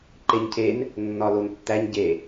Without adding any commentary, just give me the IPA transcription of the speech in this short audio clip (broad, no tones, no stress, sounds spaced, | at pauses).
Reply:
ǃ e ɲ cʰ e n | nː ɒ l o n tː æ ɲ ɟ e